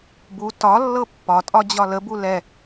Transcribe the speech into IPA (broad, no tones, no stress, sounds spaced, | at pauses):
b u t ɒ lː ɤ pː ɒ tʼ ɒ d͡ʑ ɒ l ə b u l ɛ